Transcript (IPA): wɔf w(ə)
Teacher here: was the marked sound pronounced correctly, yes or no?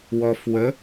yes